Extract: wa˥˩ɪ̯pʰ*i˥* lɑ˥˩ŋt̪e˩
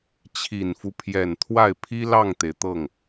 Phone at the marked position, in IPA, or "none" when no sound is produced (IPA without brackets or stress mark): i˥